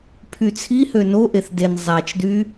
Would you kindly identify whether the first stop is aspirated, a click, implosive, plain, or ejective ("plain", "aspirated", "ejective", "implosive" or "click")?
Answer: aspirated